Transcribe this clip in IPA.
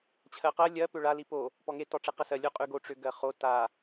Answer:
t͡ɕʰ ɜ q ɜ lʲ ɜ p ʏ ɭ a l i p o | p ɔ ŋ e t ɔ ʈ͡ʂ e q ə s ɜ lʲ o qʼ ʉ ɡ o ʈ͡ʂ ʏ ɡ ɜ χ o t a

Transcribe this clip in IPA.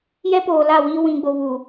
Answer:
j ɛ˦ p oː˨ l a˦˨ w iː˦ w ĩ˨ ɡ͡b o˨ β u˨

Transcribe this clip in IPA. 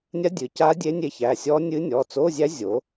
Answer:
nʲ a˧˥ dʲ ɨ˩˧ c a˧˥ dʲ e˧˥ nʲ e˧˥ ç æ˩˧˩ sʲ ɔ˧˥ nʲ ɨ˧˥ nʲ ɔ˩˧˩ t͡s o˧˥˧ zʲ æ˧˥ zʲ o˩˧

